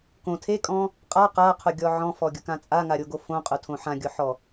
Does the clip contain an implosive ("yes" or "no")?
no